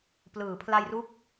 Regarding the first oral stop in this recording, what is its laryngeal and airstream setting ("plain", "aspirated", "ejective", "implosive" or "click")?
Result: plain